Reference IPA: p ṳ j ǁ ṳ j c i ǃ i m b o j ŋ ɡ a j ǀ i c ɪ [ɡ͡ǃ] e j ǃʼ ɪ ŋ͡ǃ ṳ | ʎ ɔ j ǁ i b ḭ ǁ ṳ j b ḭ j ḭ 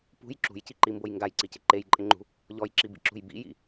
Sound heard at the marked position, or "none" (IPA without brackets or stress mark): ǃ